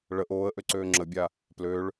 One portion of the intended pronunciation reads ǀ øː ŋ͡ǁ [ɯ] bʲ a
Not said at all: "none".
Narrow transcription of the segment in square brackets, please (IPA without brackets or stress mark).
ə